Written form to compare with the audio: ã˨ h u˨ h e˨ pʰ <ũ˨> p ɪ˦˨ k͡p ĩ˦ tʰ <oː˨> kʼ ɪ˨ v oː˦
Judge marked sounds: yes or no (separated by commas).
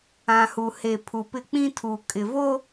no, no